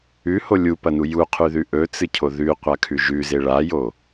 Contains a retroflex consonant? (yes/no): yes